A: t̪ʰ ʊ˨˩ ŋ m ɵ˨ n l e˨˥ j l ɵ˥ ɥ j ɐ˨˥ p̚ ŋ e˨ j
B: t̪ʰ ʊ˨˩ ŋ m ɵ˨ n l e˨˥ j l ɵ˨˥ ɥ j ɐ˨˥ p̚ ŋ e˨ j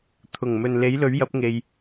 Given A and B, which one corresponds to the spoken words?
B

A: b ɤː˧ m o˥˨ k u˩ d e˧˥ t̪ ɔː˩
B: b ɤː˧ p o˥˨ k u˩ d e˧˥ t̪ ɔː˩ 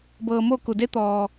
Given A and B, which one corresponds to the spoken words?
A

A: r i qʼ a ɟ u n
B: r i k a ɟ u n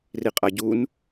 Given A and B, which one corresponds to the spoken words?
A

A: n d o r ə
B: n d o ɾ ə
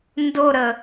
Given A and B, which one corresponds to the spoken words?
B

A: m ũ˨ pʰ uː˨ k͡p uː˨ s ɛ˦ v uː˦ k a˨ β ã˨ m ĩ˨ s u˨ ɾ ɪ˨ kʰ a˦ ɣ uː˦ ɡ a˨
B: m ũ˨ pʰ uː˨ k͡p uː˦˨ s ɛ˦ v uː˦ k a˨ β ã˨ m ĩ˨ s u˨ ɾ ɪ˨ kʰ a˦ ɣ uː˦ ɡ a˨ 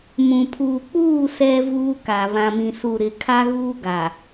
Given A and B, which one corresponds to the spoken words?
B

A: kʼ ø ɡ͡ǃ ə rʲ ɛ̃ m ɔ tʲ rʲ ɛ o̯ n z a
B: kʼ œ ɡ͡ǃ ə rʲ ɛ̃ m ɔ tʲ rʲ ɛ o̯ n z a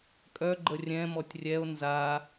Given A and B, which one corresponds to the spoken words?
B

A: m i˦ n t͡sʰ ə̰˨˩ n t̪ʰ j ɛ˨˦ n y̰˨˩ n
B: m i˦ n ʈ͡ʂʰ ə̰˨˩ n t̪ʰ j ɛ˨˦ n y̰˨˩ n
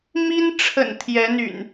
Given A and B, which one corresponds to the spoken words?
B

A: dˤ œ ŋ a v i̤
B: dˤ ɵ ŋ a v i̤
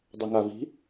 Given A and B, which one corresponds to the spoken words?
B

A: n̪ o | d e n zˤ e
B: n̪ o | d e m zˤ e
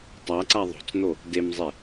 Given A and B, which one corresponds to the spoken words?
B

